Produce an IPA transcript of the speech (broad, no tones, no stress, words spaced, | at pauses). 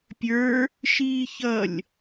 pʲə˞ | ʃiːçʌlʲ